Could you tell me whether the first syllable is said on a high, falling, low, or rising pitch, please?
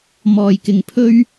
low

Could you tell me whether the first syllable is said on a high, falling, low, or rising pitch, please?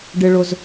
high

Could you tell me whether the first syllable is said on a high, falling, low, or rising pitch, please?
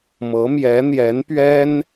rising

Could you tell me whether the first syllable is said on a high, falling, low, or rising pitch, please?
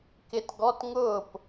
rising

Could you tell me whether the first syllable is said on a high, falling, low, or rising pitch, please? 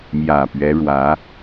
low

